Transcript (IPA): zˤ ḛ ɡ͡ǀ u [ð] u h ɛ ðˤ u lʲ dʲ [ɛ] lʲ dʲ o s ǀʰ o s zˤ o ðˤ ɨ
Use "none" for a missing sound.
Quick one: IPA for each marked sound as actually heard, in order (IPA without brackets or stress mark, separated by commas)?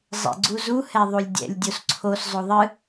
z, ɛ̰